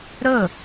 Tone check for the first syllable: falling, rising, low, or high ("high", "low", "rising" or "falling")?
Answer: falling